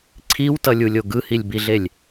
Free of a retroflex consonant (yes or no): yes